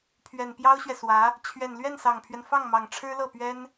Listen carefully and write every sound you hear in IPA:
pʰɥɛ˨˩npjɑ˥ʊ̯ɕɥɛ˨swä˧˥ | t͡ɕʰɥɛ˨˩nlɥɛ˥˩nsɑ˨˩ŋpʰɥɛ˦n fɑ˥˩ŋmɑ˨˩ŋ ʈ͡ʂʰɻ̩˥lɤ˥˩pɥɛ˥n

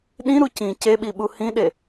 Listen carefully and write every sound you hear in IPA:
ɗĩɾu cĩ ceɓiɓu hĩɗe

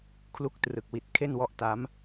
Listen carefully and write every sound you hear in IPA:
kʰlu˦˥k̚trɯ˨˩k̚wi˨˩t̚ kʰe˥˩nwɔ˦˥ʔta˦˥m

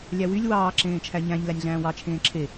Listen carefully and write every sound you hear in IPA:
lʲæwylʲ wɑː ǁẽːt͡ʃʰæɲæ̃ɲ lænʲɮæ̃ːwɑ t͡ʃʰẽːǁʰe

